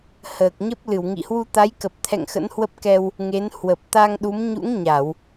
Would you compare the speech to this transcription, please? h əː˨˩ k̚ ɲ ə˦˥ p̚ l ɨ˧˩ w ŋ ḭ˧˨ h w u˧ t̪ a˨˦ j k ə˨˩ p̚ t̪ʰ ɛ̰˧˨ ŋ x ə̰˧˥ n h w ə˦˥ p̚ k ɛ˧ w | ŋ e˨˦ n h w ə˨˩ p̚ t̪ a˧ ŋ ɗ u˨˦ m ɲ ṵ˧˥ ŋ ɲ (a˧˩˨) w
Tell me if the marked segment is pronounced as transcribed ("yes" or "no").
yes